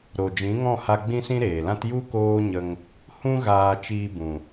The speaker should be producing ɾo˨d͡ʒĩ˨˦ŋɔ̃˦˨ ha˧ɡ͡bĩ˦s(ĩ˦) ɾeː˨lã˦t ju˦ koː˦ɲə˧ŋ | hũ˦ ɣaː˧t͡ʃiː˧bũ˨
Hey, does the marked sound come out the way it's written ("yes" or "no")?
yes